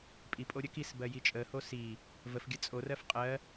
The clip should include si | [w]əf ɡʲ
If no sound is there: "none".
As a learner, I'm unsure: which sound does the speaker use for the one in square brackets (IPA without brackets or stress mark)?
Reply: v